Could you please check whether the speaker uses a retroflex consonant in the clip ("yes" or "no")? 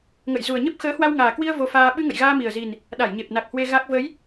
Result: no